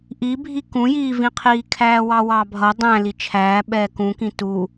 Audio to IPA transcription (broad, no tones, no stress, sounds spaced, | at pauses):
ʔ i bʱ i k ũ j iː v ĩ qʰ iː kʰ æː w ɑ w ɑ bʱ ʌ dˤ æ̃ l i t͡ʃʰ æː ɓ ɛː k ũ k ĩ t u